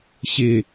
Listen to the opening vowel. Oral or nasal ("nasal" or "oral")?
oral